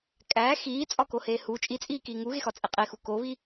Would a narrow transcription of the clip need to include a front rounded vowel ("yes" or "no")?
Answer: no